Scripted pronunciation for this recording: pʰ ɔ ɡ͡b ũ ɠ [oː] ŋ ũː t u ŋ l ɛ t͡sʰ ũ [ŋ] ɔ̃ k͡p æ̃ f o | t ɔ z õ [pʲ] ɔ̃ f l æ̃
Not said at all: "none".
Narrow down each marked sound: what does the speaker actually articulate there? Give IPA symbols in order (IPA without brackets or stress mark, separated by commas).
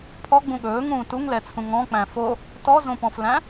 ɵː, ŋ, p